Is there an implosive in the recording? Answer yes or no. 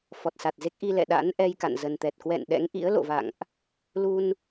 yes